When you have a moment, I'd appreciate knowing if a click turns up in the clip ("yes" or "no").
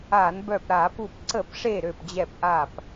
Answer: yes